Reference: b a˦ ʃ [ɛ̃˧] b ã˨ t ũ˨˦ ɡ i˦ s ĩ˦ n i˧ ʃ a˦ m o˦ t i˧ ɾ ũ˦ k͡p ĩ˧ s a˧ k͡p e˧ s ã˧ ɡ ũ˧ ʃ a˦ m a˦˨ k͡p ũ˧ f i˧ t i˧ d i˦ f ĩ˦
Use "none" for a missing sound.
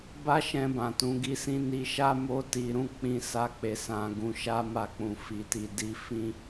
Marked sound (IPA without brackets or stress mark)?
ɛ̃˧